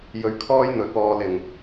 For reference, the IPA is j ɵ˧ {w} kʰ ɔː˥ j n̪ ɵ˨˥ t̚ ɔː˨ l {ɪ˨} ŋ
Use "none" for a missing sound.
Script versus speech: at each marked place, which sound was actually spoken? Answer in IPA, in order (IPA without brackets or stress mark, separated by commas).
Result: ɥ, ɪ˨˩